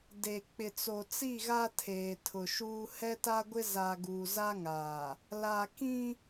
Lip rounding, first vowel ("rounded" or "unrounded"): unrounded